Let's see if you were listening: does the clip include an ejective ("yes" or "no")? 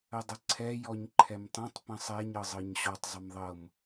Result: no